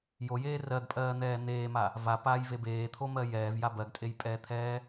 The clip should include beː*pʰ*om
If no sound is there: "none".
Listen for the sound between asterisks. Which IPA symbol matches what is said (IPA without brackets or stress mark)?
t̪ʰ